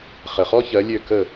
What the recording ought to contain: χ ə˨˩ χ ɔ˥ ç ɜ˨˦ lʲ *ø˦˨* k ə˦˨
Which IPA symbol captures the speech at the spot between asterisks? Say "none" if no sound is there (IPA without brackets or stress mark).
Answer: ø˦˨